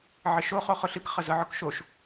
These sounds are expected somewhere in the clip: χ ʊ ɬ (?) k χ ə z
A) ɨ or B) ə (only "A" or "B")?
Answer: A